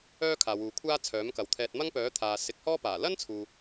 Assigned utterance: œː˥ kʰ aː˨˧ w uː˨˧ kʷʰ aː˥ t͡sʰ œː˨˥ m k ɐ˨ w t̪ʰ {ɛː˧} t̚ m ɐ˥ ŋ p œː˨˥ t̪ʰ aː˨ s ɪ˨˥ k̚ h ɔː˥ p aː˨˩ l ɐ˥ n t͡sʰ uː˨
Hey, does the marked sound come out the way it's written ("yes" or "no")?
yes